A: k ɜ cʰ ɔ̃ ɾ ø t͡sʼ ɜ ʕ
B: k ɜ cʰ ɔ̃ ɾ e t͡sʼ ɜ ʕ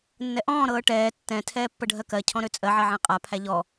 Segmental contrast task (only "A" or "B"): A